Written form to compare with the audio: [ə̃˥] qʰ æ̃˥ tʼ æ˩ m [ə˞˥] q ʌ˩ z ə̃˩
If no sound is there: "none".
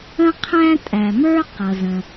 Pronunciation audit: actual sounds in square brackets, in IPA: ə̃˥, ə˞˥

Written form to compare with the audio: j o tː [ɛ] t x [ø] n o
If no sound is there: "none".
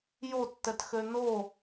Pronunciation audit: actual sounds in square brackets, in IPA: ɛ, ø

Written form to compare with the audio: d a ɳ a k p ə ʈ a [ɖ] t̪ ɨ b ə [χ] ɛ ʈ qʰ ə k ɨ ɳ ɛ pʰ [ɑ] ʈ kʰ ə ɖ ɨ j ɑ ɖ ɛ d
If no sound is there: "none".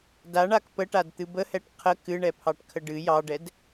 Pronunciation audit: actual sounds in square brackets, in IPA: d, h, ɑ

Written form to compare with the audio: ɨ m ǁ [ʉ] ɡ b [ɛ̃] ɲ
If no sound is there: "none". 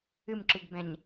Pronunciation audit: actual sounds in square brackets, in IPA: ɨ, ɛ̃

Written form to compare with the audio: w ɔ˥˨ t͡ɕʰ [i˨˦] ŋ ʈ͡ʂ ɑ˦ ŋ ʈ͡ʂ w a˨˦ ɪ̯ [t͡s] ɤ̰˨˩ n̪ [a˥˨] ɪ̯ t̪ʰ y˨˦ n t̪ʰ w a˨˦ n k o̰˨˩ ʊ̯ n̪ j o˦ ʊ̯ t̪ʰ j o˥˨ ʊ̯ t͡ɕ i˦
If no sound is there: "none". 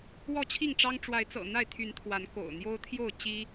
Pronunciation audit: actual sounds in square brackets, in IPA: i˥˨, t͡s, a˥˨

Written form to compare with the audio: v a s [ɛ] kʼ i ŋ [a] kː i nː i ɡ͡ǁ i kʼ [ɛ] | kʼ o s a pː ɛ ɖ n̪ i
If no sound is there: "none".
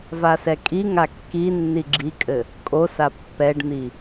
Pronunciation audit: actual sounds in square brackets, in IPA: ɛ, a, ɘ

